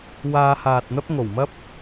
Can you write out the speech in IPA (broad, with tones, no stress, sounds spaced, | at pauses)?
w aː˧ h aː˨ t̚ n̪ ɐ˥ p̚ ŋ o˨˩ w m ɐ˥ p̚